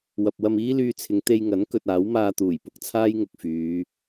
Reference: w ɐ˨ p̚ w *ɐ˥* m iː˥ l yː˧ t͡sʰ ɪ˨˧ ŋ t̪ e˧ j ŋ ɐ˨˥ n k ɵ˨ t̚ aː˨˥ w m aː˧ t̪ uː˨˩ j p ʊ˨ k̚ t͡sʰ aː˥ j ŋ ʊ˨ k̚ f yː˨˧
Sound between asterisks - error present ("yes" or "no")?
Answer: yes